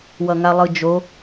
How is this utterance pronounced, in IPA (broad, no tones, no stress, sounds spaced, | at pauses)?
w ʌ ŋ a lˠ ɯ d͡ʒ o